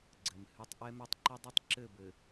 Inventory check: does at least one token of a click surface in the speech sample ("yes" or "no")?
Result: yes